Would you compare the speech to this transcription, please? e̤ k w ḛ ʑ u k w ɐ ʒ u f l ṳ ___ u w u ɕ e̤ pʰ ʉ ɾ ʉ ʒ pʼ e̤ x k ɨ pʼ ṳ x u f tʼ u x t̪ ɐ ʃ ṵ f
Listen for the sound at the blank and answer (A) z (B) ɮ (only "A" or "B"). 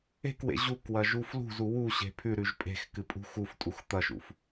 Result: A